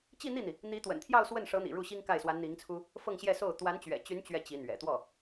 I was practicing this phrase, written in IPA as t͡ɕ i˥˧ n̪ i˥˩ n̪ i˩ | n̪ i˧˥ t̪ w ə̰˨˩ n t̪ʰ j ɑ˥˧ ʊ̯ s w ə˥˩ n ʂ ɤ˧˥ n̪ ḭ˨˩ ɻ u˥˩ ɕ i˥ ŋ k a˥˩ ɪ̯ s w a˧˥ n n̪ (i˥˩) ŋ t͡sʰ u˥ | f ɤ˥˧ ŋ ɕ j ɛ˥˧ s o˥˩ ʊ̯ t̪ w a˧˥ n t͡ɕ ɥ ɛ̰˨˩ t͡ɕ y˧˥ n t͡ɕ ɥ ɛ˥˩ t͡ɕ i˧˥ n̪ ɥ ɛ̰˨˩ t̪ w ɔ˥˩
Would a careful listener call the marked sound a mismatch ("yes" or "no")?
yes